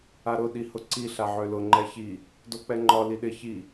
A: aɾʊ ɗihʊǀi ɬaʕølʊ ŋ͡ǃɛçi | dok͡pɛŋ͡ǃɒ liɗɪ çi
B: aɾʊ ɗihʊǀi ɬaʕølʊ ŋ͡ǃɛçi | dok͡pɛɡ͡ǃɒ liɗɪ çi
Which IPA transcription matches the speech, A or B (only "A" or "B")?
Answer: A